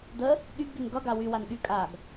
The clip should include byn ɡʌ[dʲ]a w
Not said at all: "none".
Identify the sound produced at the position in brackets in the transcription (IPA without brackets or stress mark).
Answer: ɡ